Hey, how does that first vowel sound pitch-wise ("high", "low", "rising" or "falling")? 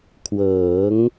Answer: rising